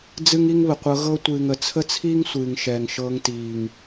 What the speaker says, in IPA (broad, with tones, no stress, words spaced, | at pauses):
d͡zɨ˦ŋi˦ŋβə˨qʷɤ˧ ɣɤ˦tʷɨː˨ŋ ə˨t͡sʰə˦t͡sʰiː˦ŋ sʷɨː˨ŋʃɛː˨ŋʃɤː˧ŋtiː˨ŋ